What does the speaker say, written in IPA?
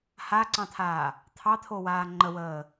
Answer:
h a ǀ ɑ̃ t̪ʰ aː | t̪ʰ ɑ t̪ʰ o w aː ŋ͡ǃ ə w əː

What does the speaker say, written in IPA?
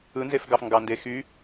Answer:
ɯ n z e f ɡ ɑ f ŋ ɡ ɑ n d e x y

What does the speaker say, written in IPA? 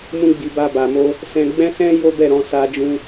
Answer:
m ũ˦ ɡ͡b i˧ b a˧ b a˨ m o˧ | s ɛ̃˦ ɡ͡b ɛ̃˦ s ɛ̃˦ j o˦ b ɛ˦˨ ɾ ɔ̃˨˦ s a˧ d͡ʒ ũ˧

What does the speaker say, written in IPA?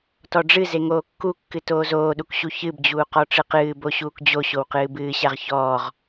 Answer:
t ɔ ɖ͡ʐ ɨ z e ŋ oː kː u kː ɨ t oː z oː ɗ u k ɕ u ç ɨ b d͡ʑ uː q ɔ ʈ͡ʂ ɨ q ɨː b o ɕ uː k d͡ʑ o ɕ o w q ɨː b ɨː ɕ a ʁ ç ɔː ʁ

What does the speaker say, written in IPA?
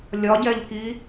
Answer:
lʲ ɒ ɟ ɛ ʎ k i

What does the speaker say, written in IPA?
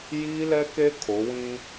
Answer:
j iː˦ l ɛ˦ k e˦ kʰ o˨˦ w ĩ˦

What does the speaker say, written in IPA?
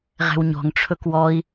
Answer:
ʁ ɛ̤ w ɲ ɔ̤ ŋ ʈ͡ʂʰ ɵ k w ɔ i̯

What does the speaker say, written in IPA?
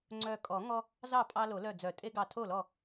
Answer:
ŋ͡ǀ œ˧˩ kʼ ɔ˨˩˦ ŋ ɔ˦ | z ɑ˥˩ pʼ ɑ˦ l o˨˩˦ l œ˧˩ d͡z œ˨˩˦ tʼ e˦ ɡ ɑ˧˩ tʰ o˥˩ l ɔ˥˩

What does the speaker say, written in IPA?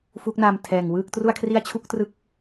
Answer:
f u˦˥ k̚ n a˧ m tʰ ɛː˨˩ ŋ w ɯː˥˩ k̚ t r u˥˩ a̯ kʰ r i˥˩ a̯ t͡ɕʰ u˥˩ k̚ t r ɯ˦˥ k̚

